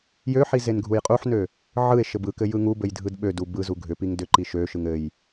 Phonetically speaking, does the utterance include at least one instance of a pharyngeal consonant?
yes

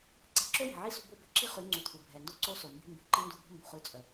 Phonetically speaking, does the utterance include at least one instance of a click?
yes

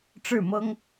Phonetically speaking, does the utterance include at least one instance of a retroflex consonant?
yes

